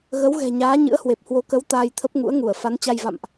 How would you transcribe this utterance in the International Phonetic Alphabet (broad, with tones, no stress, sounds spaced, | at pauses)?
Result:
ɣ ə˨˦ w ɣ ɛ̤˨˩ ɲ aː˨˦ ɲ ɨ̰˧˥ ə̯ h w e˨˩ p̚ h w o˨˦ k ə˨˦ w t̪ aː˧ j t̪ʰ ə˦˥ p̚ ŋ ṵ˧˥ ə̯ ŋ u˧˩ ə̯ f a˨˦ n t͡ɕ a˧ j v a̰˧˨ m ʔ